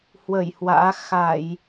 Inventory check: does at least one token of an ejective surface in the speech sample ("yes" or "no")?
no